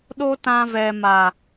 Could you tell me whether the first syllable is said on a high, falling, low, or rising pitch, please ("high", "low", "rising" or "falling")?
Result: high